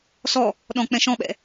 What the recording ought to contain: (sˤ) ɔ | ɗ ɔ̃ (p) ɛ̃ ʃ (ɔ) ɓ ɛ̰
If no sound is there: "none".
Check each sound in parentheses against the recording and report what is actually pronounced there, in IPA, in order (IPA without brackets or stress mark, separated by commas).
s, k͡p, ɔ̃